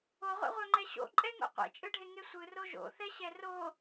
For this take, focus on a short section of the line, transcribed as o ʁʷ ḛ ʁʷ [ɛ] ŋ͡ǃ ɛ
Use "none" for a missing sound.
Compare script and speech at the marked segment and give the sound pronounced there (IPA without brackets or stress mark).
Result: œ